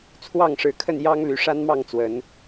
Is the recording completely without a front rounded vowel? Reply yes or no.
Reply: no